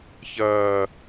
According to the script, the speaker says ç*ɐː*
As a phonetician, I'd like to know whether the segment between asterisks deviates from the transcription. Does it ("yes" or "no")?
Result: no